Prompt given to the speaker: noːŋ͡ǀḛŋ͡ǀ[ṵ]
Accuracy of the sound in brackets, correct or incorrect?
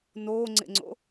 incorrect